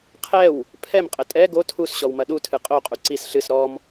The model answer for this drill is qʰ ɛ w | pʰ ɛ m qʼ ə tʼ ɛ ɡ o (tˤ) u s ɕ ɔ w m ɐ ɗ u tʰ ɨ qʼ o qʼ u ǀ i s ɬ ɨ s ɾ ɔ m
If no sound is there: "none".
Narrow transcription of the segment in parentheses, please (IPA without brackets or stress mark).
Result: tʰ